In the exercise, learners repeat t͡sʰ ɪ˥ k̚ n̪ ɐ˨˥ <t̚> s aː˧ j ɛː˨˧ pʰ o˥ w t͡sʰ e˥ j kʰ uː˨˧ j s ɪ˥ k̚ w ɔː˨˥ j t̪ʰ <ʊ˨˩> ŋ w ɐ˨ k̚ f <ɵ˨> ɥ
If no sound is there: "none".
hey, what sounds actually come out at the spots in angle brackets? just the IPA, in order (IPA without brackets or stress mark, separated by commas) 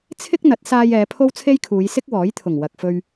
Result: t̚, ʊ˨˩, ɵ˧